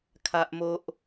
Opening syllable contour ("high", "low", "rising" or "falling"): high